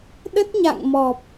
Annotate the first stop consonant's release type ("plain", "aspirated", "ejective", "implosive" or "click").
implosive